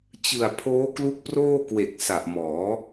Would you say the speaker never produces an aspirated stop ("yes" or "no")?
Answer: no